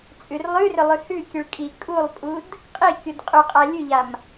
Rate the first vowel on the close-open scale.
close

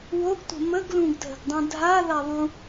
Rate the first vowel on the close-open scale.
mid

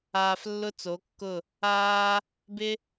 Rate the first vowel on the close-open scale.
open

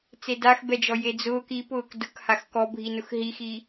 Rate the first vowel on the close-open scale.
mid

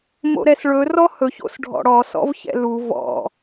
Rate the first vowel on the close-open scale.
mid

